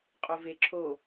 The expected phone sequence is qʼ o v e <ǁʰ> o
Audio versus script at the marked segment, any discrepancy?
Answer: no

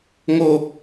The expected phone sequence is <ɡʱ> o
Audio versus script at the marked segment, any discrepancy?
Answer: yes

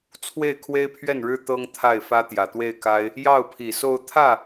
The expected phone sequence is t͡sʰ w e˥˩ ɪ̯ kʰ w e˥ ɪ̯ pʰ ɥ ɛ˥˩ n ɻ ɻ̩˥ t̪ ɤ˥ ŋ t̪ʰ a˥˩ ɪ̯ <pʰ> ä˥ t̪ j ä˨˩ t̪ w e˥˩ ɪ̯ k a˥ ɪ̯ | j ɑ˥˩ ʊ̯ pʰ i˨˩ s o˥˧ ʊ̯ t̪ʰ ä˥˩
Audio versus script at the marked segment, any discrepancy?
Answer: yes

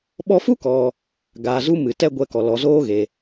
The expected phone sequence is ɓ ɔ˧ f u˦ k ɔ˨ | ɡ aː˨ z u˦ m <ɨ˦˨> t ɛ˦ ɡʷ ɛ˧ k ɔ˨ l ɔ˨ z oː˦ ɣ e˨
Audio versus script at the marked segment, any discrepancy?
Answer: yes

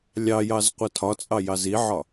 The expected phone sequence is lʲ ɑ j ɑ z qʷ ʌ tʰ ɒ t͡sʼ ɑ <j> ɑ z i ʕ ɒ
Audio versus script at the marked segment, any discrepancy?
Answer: no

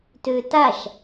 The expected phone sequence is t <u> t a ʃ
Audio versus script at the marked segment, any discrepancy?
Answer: yes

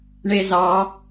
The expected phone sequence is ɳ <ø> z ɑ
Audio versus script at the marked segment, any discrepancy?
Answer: yes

